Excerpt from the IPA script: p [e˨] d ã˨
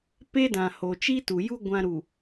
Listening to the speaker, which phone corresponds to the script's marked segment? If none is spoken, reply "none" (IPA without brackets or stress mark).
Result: e˦